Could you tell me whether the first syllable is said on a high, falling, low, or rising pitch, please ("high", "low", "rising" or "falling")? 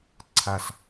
falling